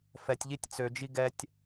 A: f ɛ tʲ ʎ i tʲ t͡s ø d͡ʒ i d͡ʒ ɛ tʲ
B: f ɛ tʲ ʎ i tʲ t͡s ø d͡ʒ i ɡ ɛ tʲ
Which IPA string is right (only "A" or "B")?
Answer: B